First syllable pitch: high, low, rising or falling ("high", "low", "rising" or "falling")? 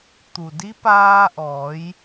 low